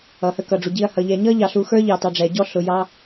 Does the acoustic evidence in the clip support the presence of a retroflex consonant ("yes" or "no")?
yes